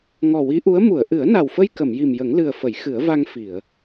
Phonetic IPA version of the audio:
ŋ ɔ˨˩ w i˧˥ ʔ u˧˥ ə̯ m u˨˩˨ ə̯ ʔ ɨ˨˩˦ ə̯ n a˨˩ w f ə˧ j k ə˨˩˨ m j i˨˩ m j ə˨˩˦ ŋ l ɨ˨˩ ə̯ f ə˨˩˦ j x ɨ˨˩˦ ə̯ v a˧ ŋ f i˨˩˨ ə̯

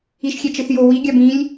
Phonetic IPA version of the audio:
i ʃ xʲ ɛ t͡ʃ ɯ θ j o w i ɡʲ a b ĩ lʲ

